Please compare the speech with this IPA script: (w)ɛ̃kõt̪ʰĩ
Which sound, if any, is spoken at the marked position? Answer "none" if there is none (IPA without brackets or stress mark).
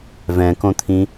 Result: v